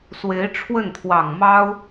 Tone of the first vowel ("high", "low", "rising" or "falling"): rising